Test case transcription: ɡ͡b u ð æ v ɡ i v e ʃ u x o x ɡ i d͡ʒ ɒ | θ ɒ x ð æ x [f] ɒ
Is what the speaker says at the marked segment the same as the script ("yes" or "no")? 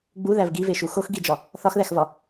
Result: no